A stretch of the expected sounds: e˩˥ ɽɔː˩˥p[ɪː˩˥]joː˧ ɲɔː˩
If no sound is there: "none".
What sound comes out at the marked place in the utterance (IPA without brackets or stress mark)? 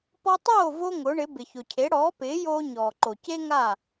ɪː˩˥